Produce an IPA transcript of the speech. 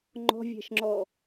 ŋ͡ǃ ɔ̤ vʲ ɛ̤ ʃ ŋ͡ǁ ɔ

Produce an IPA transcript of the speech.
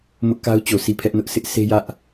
m ʊ˦ ʔ k a˦ ʊ̯ t͡ɕ o˨ s i˦˨ pʰ ɛ˦ ʔ n ʊ˦ ʔ s ɪ˦ ʔ s e˦ j ä˦ ʔ

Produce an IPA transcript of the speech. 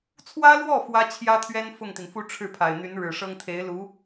t͡sʰ w ä˥ l w ɔ˥˩ f w ä˥ t͡ɕʰ j ä˥ t̪ʰ ɥ ɛ˥ n f ʊ˥˩ ŋ t̪ i˩ n f u˥˧ ʈ͡ʂʰ ɻ̩˥˩ pʰ a˨˩ ɪ̯ n̪ y˧˥ n ɻ ɻ̩˨˩ ʂ ɤ˥ ŋ t̪ʰ e˧˥ ɪ̯ l u˧˥

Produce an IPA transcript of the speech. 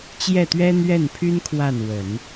t͡ɕ j ɛ˥˩ t̪ ɥ ɛ˥ n̪ ɥ ɛ˥˩ n pʰ y˥ n kʰ w a˥˩ n w ə˨˩˦ n

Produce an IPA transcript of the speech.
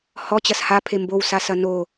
h ɔ t͡ɕ ɐ s h a pʰ e m b o w s a s ɐ n o

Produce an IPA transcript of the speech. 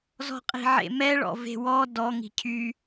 z ɔ̤ qʼ i̤ ʕ ḛ m ɛ ɭ ɔ̰ v e̤ w ɔ d ɔ ŋ i̤ cʰ y

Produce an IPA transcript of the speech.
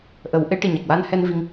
ʔ ə˨˩˦ w ʔ e˧˥ ʈ i˨˩ ɲ a˨˩ k̚ w a˧ n h ɛ˧ n v i˧ ŋ

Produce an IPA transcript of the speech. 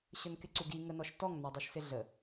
ɕ ɵ n k ɪ ǀ u ɡ i ŋ ə n ɔ ʃ t ɔ ŋ n a dˤ i ʃ s ɪ ɮ ə

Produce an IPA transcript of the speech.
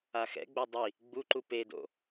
a x ɛ̰ ɡ͡b o dˤ i | ɡ͡b u ǃ u p e d o̰

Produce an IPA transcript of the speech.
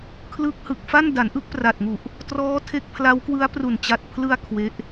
kʰ l ɯ˦˥ k̚ h ɯ˨˩ k̚ f a˥˩ n d a˩˦ n ʔ ɯ˥˩ k̚ p r a˨˩ t̚ ŋ u˨˩ ʔ | t r ɔː˦˥ tʰ e˦˥ k̚ pʰ l a˦˥ w k w ɯ˦˥ a̯ p r u˨˩ n t͡ɕ a˨˩ t̚ pʰ l ɯ˧ a̯ kʰ w e˦˥ ʔ

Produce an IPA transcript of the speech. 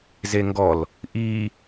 z e ŋ ɡ ɔ l | ʔ i

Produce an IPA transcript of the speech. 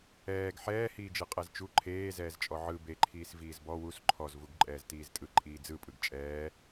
ɛː ɡ ħ ɛː h iː d͡ʒ ɯ qʼ ɛ z t͡ʃ u ǃʰ eː z ɛː z t͡ʃʼ ɔ ʕ ɯ b e ǃʰ iː s v iː z b ɔ w u s ǃʰ ɔ z v u ɡ ǃʼ ɛː z t iː z tʼ ɯ ǃʼ iː d͡z ɯ pʼ ɯ ɡ t͡ʃʼ ɛː

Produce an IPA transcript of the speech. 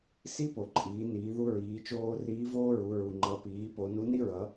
s i˥ p o˩ ǃʼ iː˩˧ n iː˩˧ ð u˧ ɹ iː˩˧ t͡ʃ oː˧ r iː˧˥ v oː˥ ɹ u˩˧ ɹ u˩ ŋ͡ǃ ʌ˩˧ p iː˩˧ p o˩˧ n u˧˥ n i˥ ɹ ʌ˩˧

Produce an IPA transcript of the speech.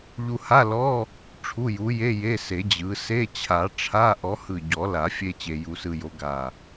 ʎ u˧ h a˧˥˧ l ɔ˧˥˧ | ʈ͡ʂʰ u˧˥˧ j u˨˥ j e˧˥˧ j e˧˥˧ s e˨˩˦ d͡ʑ ɯ˨˥ s e˧˥˧ t͡ɕʰ a˨˩˦ ʈ͡ʂʰ a˧˥˧ ʔ ɔ˨˥ h ɯ˧˩ ɟ ɔ˨˩˦ l a˨˩˦ fʲ e˧ t͡ɕ e˧ j u˧ s ɯ˧ j o˨˥ ɡ a˧˩

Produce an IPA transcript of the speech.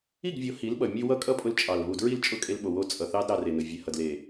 i˦˨ ɡ vʲ o˨˦ h i˨˦ l ɓ ʌ˨ mʲ ʉ˧ w ʌ˦ kʼ ʌ˦ pʼ ʊ˧ l t͡ʃʼ ɑ˨ l β u˨ d ɹ i˦˨ l t͡ʃʼ ʊ˦˨ kʼ e˧ l ɓ o˨ w o˧ t͡sʼ ʌ˨ θ ɑ˦ d ɾ ɑ˧ r e˨ n ʊ˨ vʲ e˨ h ʌ˨ d l e˨

